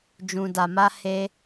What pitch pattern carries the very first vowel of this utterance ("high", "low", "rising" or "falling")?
low